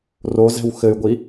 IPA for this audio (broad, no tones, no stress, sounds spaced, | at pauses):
r o z ɛ̤ w x ɘ y̯ ɡʷ i